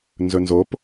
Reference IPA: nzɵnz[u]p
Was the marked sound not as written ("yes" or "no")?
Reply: yes